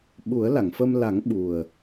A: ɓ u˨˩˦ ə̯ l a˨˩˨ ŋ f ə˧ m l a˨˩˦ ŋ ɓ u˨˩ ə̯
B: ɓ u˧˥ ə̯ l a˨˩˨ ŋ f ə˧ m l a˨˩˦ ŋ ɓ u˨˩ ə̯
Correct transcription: A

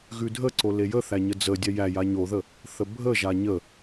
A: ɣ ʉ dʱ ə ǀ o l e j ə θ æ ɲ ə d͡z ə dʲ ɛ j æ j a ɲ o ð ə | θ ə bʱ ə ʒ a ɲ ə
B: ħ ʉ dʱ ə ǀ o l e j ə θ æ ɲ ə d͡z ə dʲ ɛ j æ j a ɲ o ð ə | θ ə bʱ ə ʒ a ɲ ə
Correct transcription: A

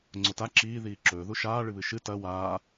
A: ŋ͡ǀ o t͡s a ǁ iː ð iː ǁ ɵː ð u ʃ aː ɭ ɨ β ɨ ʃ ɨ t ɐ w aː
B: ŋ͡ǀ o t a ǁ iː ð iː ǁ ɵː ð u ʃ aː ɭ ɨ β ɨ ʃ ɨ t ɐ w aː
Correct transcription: B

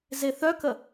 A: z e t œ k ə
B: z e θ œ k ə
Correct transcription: B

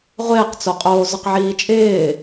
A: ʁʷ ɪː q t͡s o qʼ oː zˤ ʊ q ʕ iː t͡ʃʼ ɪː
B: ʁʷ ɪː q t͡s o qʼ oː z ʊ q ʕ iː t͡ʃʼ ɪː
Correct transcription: B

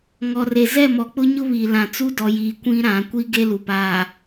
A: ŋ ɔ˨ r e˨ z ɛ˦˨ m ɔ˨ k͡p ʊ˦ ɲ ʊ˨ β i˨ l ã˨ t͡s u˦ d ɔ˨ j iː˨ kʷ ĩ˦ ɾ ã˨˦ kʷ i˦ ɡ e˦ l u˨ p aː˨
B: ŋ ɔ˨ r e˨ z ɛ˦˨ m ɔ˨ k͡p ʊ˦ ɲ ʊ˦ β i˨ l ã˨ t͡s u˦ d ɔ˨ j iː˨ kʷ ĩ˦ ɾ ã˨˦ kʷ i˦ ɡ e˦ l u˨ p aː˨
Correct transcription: B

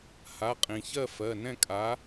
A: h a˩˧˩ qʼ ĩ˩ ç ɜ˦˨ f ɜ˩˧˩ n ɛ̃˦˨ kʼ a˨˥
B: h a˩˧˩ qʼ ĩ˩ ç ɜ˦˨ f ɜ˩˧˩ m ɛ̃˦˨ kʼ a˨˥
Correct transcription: A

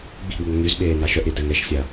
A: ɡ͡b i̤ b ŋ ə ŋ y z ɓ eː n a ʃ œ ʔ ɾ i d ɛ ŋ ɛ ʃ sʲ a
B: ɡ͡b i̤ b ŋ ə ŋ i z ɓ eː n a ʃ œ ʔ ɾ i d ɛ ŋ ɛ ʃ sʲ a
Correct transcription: A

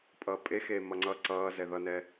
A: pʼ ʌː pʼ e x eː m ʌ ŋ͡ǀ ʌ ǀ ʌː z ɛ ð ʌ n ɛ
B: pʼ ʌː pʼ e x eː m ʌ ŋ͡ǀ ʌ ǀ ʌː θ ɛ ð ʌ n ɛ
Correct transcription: A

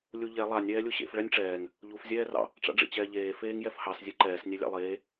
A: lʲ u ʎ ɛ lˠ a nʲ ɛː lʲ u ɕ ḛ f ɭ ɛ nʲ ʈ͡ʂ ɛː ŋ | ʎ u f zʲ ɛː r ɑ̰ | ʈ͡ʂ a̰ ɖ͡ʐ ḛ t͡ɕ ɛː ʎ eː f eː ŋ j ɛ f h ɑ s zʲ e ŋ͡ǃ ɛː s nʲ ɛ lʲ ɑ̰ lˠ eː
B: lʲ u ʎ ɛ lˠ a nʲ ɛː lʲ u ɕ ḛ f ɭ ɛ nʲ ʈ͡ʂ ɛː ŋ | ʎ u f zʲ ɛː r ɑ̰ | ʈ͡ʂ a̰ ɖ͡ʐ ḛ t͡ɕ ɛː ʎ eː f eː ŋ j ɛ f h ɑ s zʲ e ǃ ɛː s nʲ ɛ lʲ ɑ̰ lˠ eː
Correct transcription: B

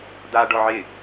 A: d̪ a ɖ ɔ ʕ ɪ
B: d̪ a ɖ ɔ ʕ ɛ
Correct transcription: A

